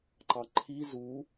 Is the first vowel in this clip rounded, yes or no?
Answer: no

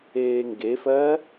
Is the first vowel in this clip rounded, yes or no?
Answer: no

